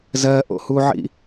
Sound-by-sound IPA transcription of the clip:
zɜʔo̰huʕḭ

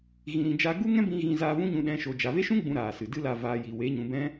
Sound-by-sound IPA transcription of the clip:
ɣĩ˨ɾĩ˨d͡ʒa˧ ɡu˦ŋɛ̃˦bĩ˧ ɣĩ˧za˧vũ˦ɲũ˧ ɗɛ̃˧ ʃo˨d͡ʒa˨ve˦ ʃũ˦ ɡ͡bũ˦ɾaː˨sɨ˨ dɨ˦la˦˨ va˧ji˨ we˨˦ɲũ˨bɛ̃˦

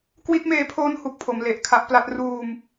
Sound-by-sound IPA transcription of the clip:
kwi˦˥t̚meː˦˥pʰoː˦˥n hu˨˩k̚pʰo˩˦m le˨˩ʔkʰa˦˥ʔpla˦˥t̚ ruː˧m

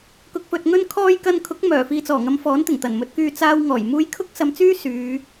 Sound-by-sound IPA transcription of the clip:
kʊ˨k̚fɵ˨t̚ŋɵ˧n kʰɔː˧j kɐ˧nkʰʊ˨˥k̚ mœː˨˩fiː˨t͡sɔː˨˩ ŋɐ˨˧mfɔː˨˥nt̪ɪ˨˩ŋ t̪ɐ˨˩nmɵ˨˥t̚kyː˧ t͡saː˧wŋɔː˨˩j muː˧jkʰʊ˥k̚ sɐ˧mt͡syː˥ syː˨˧

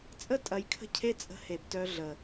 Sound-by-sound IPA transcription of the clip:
t͡sʼə˦tʼɐ˨jkʰə̤˦cʰe˦ t͡sʼə̤˦he˨btœ˦ɮə˨

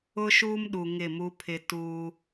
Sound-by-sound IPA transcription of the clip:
ʊ˦ʃuː˦mɗu˨ ŋɪ˦˨mu˦pʰɪ˦ tuː˦

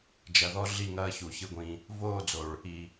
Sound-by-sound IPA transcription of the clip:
d͡ʒɐ˨ðɔ˦ ɮi˦˨ŋɐː˦ çu˨çɨ˦ɡʷĩ˦ | voː˦˨d͡zo˨ɭ | i˨

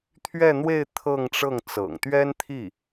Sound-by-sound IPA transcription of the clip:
t̪ʰɥɛ˥˧n̪we˥˧ɪ̯ t̪ʰɤ˥˧ŋʈ͡ʂɤ˥˩ŋ t͡sɤ̰˨˩ŋt̪ɥɛ˥nt̪ʰi˥˩

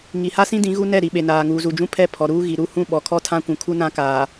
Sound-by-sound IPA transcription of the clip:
ŋi˨ha˦sĩ˦dĩ˨˦ ɣu˦nɛ˦˨ɾi˨ ɓe˨naː˨ ŋuː˨zu˨d͡ʒũ˦pʰɛ˦˨ pʰɔ˨ɾuː˦ɣi˨ ɾu˦˨hũ˦˨ ɓɔ˨kʰɔ˦ tʰã˦kʷũ˨kʰu˦nã˦ kaː˨

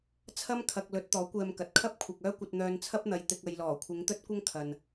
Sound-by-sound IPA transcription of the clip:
t͡sʰɐ˥mkʰɐ˨k̚ lɵ˨˥t̚t̪ɔː˨˥ kʷɛː˧mkɐ˨t̚ kʰɐ˥p̚kʷʰɐ˨k̚ œː˥kʷɐ˧t̚ n̪œː˨n t͡sʰɐ˥p̚n̪ɐ˨j t̪ɪ˨k̚ ɐ˨jlɔː˨˩ kʷʰɪ˨˧ŋt̪ɵ˥t̚kʷɐ˥ŋ kʰɐ˨n

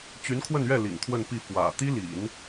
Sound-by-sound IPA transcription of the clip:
t͡ɕy˧˥nkʰwə˥˧nɥɛ˥˩ lḭ˨˩ŋt̪ʰwə˥˧npi˥˩ fwä̰˨˩ t̪i˥lḭ˨˩˦n

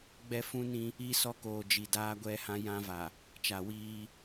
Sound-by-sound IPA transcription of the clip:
ɡ͡bɛ˦fũ˦nĩ˦ | i˦sɔ˦koː˨ d͡ʒi˨daː˦ɡʷɛ˦hã˦ jã˦va˨ | t͡ʃa˨wiː˦

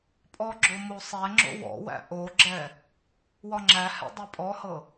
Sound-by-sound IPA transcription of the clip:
pʼɔɡ͡ǁo mosˤɛŋ͡ǁo̰ wɔ̰wæ̰ ʔoɡ͡ǁɛ | wɒŋ͡ǁæhɛ̰ dˤepʼɔhɤ

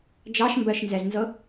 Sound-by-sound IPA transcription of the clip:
d͡ʒɑʃmbɜʃnzɛznzɤ

